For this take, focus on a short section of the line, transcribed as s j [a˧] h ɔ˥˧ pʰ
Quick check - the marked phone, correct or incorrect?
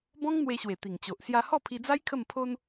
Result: correct